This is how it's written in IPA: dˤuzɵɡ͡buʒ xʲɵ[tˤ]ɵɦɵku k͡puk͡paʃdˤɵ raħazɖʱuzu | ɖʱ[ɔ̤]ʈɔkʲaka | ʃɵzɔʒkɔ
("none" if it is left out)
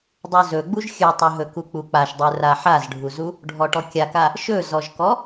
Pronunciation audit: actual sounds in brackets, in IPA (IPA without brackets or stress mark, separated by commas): tˤ, ɔ